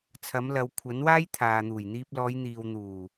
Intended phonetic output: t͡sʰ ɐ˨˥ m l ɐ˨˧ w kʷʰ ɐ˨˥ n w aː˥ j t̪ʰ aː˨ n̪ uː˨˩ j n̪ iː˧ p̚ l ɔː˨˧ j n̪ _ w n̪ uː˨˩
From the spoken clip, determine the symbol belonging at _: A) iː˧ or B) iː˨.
B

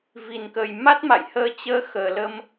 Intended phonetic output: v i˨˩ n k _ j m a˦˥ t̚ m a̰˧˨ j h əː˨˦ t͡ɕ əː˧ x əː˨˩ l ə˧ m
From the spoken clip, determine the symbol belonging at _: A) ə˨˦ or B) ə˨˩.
B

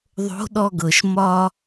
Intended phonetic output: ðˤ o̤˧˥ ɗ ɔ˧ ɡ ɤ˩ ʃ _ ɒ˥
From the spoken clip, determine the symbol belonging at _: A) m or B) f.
A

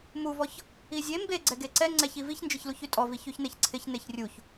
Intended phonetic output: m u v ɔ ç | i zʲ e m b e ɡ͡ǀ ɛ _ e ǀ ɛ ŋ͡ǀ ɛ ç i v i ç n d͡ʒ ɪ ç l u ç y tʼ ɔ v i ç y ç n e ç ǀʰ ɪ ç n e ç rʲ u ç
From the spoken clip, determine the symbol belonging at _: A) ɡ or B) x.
A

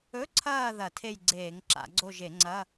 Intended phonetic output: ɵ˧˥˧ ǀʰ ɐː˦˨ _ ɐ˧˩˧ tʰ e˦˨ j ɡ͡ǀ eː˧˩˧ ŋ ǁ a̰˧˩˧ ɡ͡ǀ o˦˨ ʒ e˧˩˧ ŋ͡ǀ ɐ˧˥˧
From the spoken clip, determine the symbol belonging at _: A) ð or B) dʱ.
A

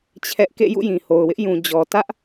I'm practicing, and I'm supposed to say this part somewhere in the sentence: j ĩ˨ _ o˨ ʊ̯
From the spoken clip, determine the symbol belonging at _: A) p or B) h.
B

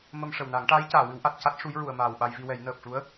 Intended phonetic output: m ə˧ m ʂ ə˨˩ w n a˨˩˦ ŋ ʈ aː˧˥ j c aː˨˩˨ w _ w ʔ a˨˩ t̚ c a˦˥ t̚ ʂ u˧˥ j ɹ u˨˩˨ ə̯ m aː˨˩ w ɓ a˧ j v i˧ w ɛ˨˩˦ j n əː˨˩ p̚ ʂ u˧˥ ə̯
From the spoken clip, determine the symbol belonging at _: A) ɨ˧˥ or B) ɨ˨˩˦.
B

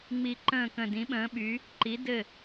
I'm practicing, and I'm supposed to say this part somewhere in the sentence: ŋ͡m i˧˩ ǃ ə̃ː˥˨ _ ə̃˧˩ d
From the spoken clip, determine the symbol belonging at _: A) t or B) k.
B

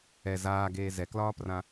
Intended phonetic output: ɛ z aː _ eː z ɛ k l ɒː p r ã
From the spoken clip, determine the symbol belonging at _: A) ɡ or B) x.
A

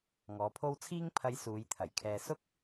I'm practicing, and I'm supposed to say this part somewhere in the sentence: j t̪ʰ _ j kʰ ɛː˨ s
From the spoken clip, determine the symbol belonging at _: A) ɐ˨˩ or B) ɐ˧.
A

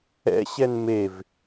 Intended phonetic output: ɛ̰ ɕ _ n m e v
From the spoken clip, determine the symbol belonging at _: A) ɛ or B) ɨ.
A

